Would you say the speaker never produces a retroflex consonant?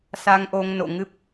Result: yes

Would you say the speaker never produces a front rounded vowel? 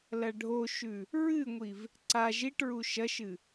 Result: yes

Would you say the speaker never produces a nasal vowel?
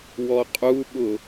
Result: yes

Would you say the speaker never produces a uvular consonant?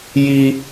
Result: yes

